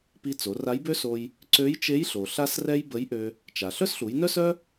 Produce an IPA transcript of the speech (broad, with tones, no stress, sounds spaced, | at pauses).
p i˧ t͡s o˩˧ r a˧˥ j b ø˥ s o˧ j | ǀ ø˧˥ j t͡ʃ e˧˥ j ɬ o˩ ɬ a˥ s r ɛ˥ j b ə˧˥ j ʔ ø˧ | t͡ʃ a˩ ɬ œ˥ s ɬ u˩˧ j n œ˥ s œ˥